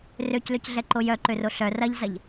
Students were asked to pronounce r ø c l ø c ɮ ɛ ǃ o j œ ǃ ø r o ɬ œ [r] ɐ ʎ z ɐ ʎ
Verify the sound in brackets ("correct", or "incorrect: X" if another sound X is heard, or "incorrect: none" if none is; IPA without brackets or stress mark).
correct